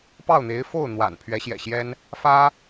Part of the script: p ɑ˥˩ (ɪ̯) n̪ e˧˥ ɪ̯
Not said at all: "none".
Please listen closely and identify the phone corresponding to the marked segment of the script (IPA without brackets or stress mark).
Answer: ʊ̯